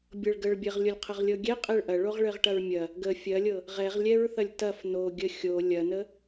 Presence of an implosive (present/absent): absent